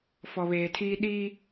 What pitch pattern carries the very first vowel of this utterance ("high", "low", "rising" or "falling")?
low